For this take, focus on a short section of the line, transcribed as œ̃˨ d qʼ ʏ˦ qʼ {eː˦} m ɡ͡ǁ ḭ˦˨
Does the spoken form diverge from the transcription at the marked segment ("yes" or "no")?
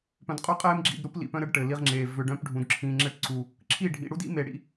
no